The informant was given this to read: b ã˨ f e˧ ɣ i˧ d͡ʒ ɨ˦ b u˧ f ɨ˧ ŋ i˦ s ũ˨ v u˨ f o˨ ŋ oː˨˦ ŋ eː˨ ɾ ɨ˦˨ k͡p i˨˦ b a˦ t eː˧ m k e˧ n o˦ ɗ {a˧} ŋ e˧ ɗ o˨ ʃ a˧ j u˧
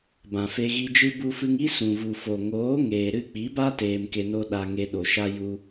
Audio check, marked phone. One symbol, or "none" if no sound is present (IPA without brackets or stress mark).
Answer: a˧